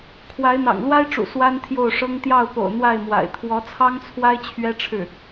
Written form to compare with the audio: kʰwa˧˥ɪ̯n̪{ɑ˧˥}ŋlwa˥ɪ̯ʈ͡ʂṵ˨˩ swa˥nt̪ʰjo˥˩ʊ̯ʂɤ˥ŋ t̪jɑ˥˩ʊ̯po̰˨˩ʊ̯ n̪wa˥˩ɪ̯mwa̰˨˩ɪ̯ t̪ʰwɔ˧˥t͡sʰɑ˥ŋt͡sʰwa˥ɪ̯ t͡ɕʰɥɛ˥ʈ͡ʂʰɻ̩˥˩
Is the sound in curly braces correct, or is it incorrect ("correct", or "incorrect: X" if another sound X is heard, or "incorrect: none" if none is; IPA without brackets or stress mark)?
incorrect: ɑ̰˨˩